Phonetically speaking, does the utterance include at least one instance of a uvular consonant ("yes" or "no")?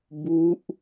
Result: no